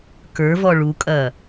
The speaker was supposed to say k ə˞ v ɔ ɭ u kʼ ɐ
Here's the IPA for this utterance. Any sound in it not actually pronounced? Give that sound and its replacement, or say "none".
none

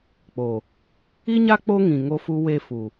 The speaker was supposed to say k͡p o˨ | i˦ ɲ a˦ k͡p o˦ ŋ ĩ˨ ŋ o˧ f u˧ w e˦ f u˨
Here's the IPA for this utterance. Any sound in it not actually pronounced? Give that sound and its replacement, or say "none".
none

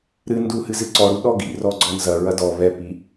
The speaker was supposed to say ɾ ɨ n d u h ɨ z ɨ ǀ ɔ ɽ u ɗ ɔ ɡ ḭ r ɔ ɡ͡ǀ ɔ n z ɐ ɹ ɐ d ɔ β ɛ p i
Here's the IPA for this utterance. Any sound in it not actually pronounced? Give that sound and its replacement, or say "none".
none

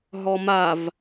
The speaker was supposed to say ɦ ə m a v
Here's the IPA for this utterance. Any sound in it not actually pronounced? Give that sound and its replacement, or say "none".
ə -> ɔ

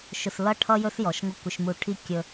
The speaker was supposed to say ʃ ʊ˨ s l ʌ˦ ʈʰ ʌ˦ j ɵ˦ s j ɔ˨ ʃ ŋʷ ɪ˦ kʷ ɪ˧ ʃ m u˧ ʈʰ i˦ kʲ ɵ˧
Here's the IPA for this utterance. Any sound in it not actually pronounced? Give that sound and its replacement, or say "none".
none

